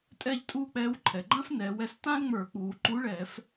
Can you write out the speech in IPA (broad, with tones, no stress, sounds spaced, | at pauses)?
tʼ ɛ˥˧ ʎ tʼ uː˥˧ k͡p ɛː˧˥ w ǃʰ ɛ˩ ɡ͡ǃ ã˥ f n ɛː˩˧ w ɛ˥˧ s t ã˥ l ŋ͡m ə˞˧˩˧ k͡p uː˩˧ ǃ u˧˥ ɭ ɛː˧˩˧ f